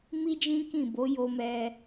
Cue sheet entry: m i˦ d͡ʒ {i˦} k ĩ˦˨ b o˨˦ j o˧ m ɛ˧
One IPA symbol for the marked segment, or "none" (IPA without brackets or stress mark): ĩ˦